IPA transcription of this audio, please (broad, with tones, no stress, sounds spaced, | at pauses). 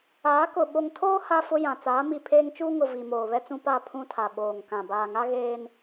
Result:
aː˨˦ k ʊ˨ ɓ o˨ ŋ tʰ oː˦ h a˦ f ʊ˦ j ã˨ t͡s aː˨˦ m i˨ pʰ eː˦ ŋ t͡ʃ uː˦ ŋ ʊ˨ v i˨ m oː˨ β ɛ˦ t͡s ũ˦ p a˦˨ pʰ ũ˦ tʰ a˨ ɓ oː˨ ŋ k ã˨ b aː˨ ŋ a˦ ɣ eː˦ n